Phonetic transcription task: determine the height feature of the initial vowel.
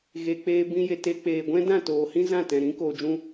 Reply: mid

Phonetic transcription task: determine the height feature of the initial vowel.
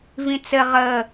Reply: high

